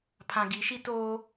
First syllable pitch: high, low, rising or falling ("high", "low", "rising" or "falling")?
low